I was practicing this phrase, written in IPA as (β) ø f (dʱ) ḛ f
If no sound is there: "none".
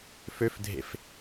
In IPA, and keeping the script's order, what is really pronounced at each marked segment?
f, dʱ

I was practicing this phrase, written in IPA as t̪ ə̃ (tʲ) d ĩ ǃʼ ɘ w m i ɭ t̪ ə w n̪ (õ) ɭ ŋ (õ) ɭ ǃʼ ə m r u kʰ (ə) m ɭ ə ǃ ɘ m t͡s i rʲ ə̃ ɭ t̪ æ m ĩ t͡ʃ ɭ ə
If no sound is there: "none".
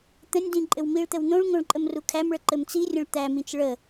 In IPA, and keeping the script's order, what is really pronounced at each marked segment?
nʲ, õ, õ, æ

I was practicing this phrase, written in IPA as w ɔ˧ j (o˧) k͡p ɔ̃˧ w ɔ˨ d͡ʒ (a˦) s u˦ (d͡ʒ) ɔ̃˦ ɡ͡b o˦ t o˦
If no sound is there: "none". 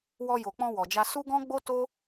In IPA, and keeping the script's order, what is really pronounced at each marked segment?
o˨, a˧, ɡ

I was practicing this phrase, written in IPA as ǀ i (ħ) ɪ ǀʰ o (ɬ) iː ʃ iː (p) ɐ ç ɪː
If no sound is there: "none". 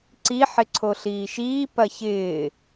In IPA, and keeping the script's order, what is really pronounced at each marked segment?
ħ, ɬ, p

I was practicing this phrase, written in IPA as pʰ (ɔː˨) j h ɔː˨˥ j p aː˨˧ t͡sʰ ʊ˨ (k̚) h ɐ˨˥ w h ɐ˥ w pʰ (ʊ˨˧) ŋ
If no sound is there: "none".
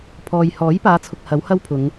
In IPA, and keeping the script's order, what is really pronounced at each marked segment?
ɔː˨, k̚, ʊ˨˧

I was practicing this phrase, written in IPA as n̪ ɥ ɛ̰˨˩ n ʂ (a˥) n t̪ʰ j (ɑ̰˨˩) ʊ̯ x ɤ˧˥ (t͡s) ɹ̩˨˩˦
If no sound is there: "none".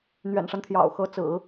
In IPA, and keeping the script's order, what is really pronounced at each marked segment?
a˦, ɑ̰˨˩, t͡s

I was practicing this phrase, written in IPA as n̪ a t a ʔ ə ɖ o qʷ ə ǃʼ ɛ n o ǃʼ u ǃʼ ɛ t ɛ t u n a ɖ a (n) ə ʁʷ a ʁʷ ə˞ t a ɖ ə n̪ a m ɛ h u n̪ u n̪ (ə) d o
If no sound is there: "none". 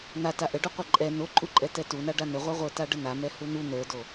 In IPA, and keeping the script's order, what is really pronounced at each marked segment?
n, ə˞

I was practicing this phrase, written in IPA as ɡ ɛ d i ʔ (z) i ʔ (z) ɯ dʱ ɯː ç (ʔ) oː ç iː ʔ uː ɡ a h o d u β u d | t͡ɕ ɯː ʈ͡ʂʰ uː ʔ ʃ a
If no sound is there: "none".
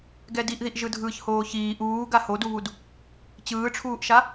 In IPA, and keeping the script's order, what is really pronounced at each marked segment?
ð, ʒ, h

